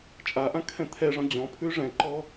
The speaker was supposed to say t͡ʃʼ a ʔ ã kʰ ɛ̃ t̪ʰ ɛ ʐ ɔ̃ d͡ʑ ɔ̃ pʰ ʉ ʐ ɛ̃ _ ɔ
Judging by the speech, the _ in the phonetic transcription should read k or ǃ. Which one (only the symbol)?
ǃ